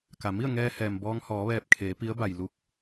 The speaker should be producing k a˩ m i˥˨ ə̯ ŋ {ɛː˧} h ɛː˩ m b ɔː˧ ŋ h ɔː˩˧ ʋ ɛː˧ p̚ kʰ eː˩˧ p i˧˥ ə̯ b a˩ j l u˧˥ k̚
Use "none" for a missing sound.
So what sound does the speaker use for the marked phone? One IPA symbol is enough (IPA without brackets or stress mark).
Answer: ɛː˧